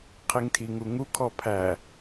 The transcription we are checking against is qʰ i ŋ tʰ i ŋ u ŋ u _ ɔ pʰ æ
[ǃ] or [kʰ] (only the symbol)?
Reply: kʰ